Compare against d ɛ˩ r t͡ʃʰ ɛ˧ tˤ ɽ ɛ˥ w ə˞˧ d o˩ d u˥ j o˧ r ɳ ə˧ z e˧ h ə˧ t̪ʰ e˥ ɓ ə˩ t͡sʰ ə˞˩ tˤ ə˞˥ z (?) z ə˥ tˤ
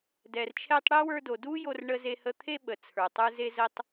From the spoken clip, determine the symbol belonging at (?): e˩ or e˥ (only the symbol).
e˥